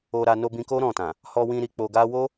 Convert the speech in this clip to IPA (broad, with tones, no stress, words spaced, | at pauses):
o˧ɾa˧ no˧bĩ˧ko˦ ɾɔ̃˦˨tã˨ | hɔ˧wĩ˧ ɾi˧k͡po˧ɡa˦ wo˦